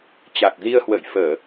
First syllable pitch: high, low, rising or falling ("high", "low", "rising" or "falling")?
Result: low